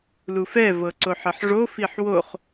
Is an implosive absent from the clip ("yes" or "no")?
yes